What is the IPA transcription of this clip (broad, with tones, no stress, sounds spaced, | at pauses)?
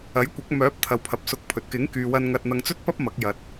ɐ˨˥ j kʷ ɐ˨˥ k̚ m œː˨˥ p̚ t̪ʰ ɐ˨ w pʰ ɐ˨ p̚ s ʊ˧ k̚ pʰ ɵ˧ t̚ k ɪ˨˥ ŋ k yː˨ w ɐ˧ n ŋ ɐ˧ t̚ n̪ ɐ˧ ŋ t͡s ɵ˥ t̚ p ɐ˥ p̚ m ɐ˨˥ k̚ j ɐ˨ t̚